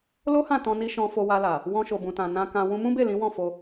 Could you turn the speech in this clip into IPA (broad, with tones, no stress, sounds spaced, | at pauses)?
l o˦ h ã˦˨ t ɔ̃˧ n i˧ ʃ ɔ̃˧ f o˧ w a˧ l a˨ | w ɔ̃˧ ʃ o˨ b ũ˨ t ã˨ n ã˧ k ã˧ w ũ˧ m ũ˦ b e˦˨ l ĩ˨˦ w ɔ̃˦˨ f o˧